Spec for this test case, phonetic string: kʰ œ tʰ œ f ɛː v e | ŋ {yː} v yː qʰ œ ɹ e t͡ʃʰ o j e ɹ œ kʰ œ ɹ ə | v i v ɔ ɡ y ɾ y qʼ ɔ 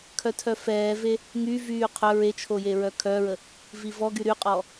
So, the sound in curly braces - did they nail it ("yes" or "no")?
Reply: no